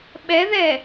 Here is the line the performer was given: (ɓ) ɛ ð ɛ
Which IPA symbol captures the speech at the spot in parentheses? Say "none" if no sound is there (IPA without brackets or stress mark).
ɓ